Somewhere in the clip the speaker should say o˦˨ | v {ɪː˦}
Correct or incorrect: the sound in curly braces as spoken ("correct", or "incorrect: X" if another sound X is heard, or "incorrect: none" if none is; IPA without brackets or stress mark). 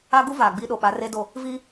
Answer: incorrect: iː˦